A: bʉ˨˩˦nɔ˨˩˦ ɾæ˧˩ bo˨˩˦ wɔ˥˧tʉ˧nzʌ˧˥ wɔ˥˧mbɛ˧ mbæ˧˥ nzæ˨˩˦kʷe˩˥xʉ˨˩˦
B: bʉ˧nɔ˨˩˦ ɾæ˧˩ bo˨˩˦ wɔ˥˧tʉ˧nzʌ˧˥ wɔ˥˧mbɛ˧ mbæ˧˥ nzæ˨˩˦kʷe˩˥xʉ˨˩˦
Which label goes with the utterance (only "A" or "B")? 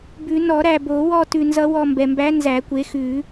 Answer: A